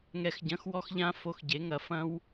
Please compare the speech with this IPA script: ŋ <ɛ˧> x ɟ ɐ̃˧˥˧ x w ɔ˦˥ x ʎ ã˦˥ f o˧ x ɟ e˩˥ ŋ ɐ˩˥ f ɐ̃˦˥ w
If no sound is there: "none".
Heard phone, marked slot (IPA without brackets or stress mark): ɛ˧